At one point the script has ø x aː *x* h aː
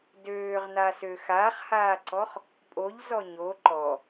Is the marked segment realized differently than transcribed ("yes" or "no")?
yes